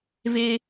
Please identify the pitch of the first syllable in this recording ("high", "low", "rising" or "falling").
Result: high